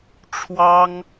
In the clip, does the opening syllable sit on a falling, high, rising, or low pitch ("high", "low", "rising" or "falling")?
high